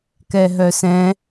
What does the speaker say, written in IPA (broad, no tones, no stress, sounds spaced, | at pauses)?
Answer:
k ɛ ɦ œ s ɛ̃